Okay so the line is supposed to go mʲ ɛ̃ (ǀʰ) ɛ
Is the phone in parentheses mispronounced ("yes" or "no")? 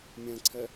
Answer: no